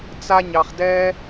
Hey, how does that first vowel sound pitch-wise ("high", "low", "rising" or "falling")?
high